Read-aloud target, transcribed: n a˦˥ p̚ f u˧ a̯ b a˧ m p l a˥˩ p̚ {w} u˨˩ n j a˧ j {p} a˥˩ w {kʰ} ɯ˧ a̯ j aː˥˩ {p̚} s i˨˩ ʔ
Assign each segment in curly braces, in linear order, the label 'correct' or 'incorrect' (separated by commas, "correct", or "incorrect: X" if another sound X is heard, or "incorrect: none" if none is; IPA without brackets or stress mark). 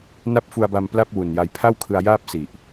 correct, incorrect: pʰ, correct, correct